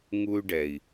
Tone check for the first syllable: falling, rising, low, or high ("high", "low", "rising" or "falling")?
high